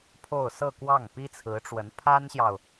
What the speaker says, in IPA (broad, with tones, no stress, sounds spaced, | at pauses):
pʰ o˥˧ ʊ̯ s ɤ˥˧ k w ɑ˥˩ ŋ p i˥ t͡sʰ ɹ̩˧˥ ʈ͡ʂ w ə˧˥ n pʰ a˥ n ɕ j ɑ˨ ʊ̯